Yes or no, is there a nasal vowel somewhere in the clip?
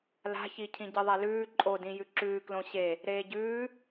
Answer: yes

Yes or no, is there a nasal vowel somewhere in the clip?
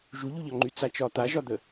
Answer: no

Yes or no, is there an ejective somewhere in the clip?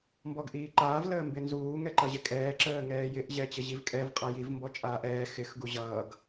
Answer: yes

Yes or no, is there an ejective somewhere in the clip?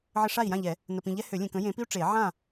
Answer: no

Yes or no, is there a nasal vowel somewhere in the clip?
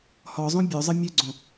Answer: yes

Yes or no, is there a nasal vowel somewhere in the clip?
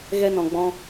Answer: yes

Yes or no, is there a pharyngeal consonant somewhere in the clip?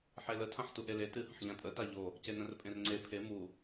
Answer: yes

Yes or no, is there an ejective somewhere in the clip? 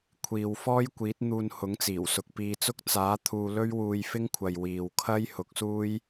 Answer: no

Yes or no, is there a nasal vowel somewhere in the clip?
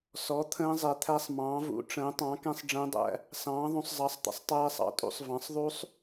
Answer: yes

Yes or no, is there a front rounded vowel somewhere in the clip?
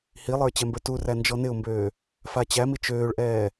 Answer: yes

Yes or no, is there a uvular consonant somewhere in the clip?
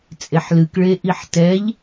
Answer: no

